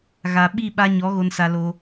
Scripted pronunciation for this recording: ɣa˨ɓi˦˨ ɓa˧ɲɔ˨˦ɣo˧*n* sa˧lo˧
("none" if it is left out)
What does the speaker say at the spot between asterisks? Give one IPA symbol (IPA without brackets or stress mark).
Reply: n